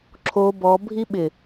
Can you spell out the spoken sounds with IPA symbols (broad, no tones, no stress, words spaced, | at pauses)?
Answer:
ǁʰo bɔ bʱiɓɪ